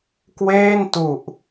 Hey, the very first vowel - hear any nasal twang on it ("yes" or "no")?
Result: no